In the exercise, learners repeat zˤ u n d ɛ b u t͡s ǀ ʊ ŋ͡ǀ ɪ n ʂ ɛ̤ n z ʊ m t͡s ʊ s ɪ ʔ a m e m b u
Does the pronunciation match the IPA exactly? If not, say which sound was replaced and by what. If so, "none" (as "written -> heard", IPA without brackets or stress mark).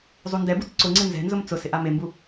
ʂ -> z